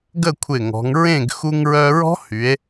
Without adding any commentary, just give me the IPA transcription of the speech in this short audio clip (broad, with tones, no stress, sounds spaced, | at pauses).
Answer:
ɡ ə˥˨ kʷʰ ɪ˧˩ ŋ ɔ̤˩˧ ŋ ɹ ẽ˥˨ ɡ x u˧ ŋ ɹ œ˧ ɹ ɔ̤˦˥ h y˩˧ e̯